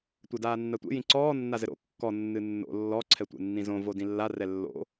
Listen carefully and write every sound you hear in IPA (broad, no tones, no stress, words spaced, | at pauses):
tʷɛdaːnːatʷḛ jĩǀɔː nːazɘɾo̰ kːɔ nːɨnːo̰ lːɔ ǀʰɛtʷḛnːĩzõ vodĩlːa rɛlːo̰